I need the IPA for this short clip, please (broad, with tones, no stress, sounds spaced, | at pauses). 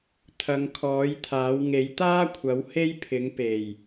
t̪ʰ ɐ˨˧ ŋ kʰ ɔː˨˥ j t̪ʰ aː˨˥ w ŋ e˨˥ j t̪ aː˥ kʷʰ ɐ˨˥ w h e˥ j pʰ ɪ˨˥ ŋ p e˨˩ j